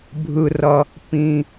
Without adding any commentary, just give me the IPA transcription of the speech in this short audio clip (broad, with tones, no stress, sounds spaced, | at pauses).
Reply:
bʱ ɯ˩ r ʌ˩ | p ĩ˩